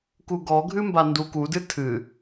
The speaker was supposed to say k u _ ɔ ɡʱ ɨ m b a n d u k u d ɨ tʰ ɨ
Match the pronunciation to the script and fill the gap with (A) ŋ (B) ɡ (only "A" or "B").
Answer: B